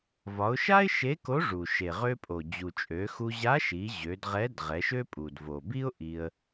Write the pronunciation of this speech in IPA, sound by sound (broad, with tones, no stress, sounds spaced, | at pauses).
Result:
v ɒ˩˧ ʊ̯ ʃ a˥ ɪ̯ ʃ e˧˥ k o˧˥ ʐ u˩ ʃ e˩ ʁ ø˧ pʼ o˩ d͡ʑ u˩ t͡ʃʼ ø˩˧ x u˧ ʑ a˧˥ ʃ i˩˧ ʑ ø˩˧ d ʁ ɛ˧˥ d ʁ ɛ˩˧ ʃ ø˥ pʼ u˩ d v o˩ b i˥ ʊ̯ ʔ i˧ ə̯